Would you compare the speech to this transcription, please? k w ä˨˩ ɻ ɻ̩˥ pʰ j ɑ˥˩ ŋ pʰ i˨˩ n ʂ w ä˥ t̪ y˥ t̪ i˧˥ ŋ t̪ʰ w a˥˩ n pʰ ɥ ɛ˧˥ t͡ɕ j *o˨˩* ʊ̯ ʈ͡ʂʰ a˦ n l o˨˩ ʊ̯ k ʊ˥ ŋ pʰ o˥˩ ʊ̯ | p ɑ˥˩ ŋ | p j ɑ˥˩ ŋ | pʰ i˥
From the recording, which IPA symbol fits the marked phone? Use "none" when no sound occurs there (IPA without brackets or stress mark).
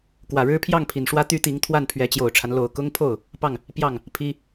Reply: o˨˩